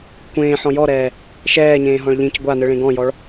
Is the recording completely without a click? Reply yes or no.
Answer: yes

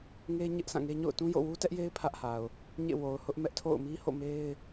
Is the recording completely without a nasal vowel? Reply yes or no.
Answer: no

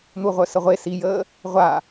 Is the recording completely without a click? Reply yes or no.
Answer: yes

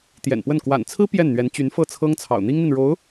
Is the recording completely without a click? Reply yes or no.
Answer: yes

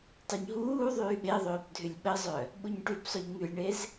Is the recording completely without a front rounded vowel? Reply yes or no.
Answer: no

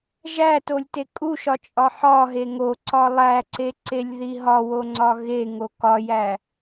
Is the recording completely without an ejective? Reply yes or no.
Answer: no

